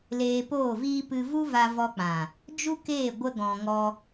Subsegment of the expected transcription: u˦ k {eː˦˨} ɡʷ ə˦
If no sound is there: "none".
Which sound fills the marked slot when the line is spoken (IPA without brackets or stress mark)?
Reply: eː˦˨